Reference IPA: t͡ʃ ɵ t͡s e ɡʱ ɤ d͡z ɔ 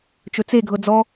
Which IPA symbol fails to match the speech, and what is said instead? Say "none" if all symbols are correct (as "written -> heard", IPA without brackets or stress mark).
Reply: none